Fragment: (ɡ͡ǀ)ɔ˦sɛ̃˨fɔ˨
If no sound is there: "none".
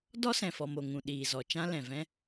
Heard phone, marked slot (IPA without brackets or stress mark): d